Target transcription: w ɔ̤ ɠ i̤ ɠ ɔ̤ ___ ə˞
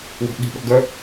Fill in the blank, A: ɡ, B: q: A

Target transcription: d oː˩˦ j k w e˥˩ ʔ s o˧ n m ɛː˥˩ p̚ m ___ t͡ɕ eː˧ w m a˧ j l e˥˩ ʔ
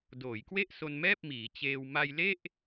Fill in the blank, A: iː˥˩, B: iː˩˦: B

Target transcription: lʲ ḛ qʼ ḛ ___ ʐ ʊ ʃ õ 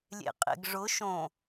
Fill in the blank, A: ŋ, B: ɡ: B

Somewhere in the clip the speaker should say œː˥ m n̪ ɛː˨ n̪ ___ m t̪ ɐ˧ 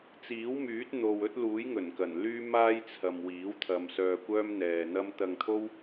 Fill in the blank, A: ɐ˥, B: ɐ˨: A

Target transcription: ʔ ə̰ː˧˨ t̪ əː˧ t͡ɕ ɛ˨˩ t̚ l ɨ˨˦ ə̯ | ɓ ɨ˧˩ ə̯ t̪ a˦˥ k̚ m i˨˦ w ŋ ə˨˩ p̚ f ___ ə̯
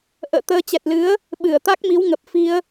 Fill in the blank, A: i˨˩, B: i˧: B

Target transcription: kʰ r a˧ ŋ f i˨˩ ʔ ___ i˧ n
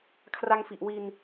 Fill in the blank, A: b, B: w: B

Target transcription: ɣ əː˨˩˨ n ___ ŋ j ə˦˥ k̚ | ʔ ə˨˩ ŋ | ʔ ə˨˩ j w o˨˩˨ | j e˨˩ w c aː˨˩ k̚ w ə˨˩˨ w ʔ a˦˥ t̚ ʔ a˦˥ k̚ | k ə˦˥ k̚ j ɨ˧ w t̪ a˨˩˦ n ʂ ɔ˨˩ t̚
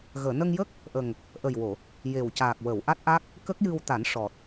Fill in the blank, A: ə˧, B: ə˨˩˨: A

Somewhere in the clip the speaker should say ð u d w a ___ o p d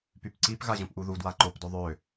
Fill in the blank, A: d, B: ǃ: B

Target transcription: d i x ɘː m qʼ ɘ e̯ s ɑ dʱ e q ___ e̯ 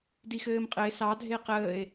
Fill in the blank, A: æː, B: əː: B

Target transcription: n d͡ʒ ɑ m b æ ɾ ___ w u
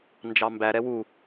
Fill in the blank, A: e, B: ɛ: B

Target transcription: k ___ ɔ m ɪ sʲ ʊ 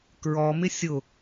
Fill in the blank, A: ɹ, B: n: A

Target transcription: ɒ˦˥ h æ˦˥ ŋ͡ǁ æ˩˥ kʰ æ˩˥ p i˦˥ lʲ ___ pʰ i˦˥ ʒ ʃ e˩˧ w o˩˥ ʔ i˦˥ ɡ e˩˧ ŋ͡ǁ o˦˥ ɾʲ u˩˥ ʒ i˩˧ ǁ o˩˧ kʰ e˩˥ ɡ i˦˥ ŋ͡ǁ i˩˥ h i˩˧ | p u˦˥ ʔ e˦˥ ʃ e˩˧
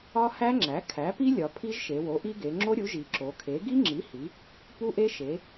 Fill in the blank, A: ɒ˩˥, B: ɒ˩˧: B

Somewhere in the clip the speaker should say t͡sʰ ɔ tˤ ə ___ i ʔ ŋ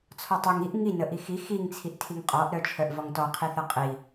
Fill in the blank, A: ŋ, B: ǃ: A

